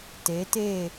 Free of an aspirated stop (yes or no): yes